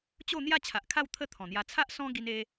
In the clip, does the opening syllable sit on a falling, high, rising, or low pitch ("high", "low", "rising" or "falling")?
falling